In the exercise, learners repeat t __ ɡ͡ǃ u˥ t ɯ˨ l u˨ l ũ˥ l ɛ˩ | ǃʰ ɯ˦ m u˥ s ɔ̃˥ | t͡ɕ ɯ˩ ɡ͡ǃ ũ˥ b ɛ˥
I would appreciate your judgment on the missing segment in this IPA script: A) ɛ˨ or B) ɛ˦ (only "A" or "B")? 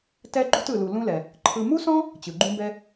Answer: B